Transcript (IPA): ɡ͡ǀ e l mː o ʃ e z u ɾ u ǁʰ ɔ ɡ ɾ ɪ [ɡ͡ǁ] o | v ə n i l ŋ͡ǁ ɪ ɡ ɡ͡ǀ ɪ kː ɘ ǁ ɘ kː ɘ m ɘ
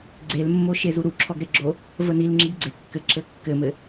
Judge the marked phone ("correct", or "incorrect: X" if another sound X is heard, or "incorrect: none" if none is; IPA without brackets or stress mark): correct